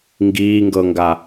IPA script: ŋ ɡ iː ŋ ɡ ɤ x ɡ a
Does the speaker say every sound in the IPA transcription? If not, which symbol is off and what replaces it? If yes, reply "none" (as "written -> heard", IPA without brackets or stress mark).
x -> ŋ